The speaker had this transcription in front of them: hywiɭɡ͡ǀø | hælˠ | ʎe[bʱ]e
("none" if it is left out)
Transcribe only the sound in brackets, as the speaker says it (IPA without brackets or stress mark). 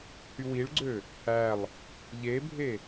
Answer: bʱ